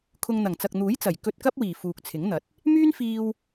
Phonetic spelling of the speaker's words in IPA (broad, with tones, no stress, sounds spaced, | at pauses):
kʰ ʊ˧ ŋ n̪ ɐ˨˩ ŋ t͡s ɐ˨ k̚ n̪ uː˨˥ j t͡s ɐ˨˩ j k ɵ˧ t̚ k ɐ˥ p̚ w iː˨˩ f uː˨ k̚ t͡sʰ ɪ˨˥ ŋ n̪ ɐ˨˥ t̚ | m yː˥ n f iː˧ w